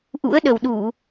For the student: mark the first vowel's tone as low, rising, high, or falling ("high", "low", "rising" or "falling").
rising